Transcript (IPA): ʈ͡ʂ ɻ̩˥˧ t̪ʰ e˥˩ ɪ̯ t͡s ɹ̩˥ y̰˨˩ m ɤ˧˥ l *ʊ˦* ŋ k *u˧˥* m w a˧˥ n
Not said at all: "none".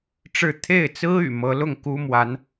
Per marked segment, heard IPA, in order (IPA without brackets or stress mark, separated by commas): ʊ˥˩, u˥